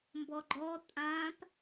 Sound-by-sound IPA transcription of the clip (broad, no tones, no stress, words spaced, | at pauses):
mbɔɡ͡ǃɔ tʼãp